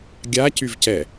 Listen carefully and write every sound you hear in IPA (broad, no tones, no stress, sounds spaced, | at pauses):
ɡʲ a c y v c ɛ